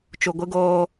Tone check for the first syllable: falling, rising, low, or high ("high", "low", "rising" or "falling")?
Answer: low